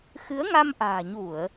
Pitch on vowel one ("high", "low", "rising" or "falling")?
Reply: rising